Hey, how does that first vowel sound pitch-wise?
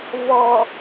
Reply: low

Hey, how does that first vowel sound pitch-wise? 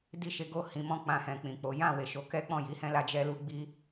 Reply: high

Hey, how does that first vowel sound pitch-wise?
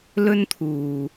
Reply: high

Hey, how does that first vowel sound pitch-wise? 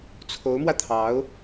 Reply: rising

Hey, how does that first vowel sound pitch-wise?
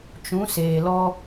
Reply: rising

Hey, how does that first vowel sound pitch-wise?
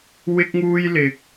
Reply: high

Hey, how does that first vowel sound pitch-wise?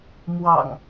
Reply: low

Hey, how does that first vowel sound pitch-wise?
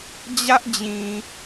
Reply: high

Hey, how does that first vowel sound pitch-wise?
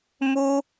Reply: high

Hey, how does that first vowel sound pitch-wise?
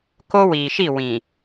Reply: high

